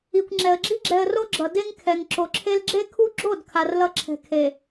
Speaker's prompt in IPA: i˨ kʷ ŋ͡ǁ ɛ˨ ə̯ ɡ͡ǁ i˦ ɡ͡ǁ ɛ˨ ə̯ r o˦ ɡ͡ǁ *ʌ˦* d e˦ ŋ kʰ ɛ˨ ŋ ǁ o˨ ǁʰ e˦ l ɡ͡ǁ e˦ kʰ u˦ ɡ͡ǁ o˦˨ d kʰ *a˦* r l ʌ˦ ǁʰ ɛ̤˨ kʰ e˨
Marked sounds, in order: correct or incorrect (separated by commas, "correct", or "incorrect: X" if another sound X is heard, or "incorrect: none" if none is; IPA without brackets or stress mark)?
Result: incorrect: ʌ˨, incorrect: a˨